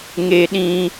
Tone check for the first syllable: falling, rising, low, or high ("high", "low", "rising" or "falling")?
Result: high